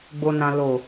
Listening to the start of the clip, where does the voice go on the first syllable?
low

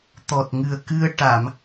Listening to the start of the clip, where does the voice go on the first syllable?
low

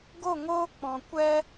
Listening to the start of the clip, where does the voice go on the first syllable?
falling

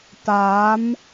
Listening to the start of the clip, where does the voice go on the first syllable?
rising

